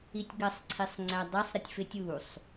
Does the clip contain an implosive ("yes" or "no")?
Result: no